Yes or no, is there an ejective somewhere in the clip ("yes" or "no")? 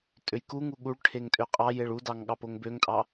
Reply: yes